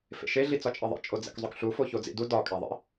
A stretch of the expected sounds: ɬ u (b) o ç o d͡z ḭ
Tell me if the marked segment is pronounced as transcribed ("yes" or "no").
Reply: no